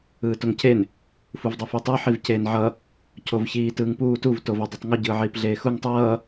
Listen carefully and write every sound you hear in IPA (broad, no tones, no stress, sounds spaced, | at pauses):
ɯː t o ŋ cʰ e n | f u v dˤ ɛ f i tˤ o ħ i v c eː n ʕ ʌ | cʰ o v ç iː t ɯː ŋ p uː t u v t o v ɛ dˤ ɯ tˤ ŋ u ɟ ɯː ʕ iː p ɮ eː x u ŋ tˤ ʌː